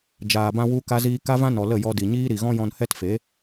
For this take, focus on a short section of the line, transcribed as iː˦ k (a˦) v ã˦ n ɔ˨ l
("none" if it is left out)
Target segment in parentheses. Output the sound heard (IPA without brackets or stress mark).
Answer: a˦